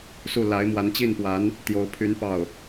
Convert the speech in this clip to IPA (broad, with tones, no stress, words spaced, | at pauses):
su˥˩ la˧˥ɪ̯mwa˧˥nt͡ɕi˥˩npwa˧˥n | t̪jo˧˥ʊ̯pʰy˧˥n pɑ˥˩ʊ̯